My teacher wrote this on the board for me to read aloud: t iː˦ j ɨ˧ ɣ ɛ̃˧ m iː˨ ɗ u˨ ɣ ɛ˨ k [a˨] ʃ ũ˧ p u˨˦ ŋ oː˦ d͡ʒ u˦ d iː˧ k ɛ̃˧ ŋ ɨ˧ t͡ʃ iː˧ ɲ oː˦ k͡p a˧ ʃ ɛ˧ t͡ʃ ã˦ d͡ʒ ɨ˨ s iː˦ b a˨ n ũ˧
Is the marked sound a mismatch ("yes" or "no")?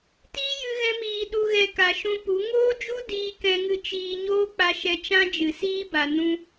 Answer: no